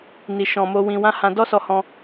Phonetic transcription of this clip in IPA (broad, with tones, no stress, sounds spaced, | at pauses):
n i˨ ʃ ɔ̃˨ m o˧ w ĩ˨ w ã˨˦ h ã˦ d ɔ˦ s ɔ˧ h ɔ̃˧